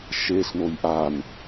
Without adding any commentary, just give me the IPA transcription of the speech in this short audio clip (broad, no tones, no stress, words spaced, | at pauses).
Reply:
ʃesnoj ʔan